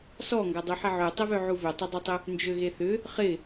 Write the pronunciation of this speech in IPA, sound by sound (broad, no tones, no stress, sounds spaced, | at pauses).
s ɔ ŋ ɡ ɐ dˤ u ħ ɪ ʕ ø tˤ ɪ v ø ʕ u v ʏ tˤ ɪ dˤ u tˤ ʏ | n d͡ʒ ø ɣ e θ ʏ | χ ɪ